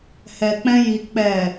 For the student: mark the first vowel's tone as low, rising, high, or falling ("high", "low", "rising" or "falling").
low